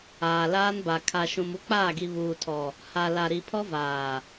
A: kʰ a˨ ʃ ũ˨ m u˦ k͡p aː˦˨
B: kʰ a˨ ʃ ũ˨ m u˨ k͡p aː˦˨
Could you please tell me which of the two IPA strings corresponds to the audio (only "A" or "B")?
A